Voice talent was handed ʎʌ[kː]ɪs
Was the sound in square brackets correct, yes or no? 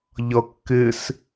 yes